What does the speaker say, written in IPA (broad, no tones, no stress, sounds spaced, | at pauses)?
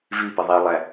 v i p ə ðˤ i lˠ æ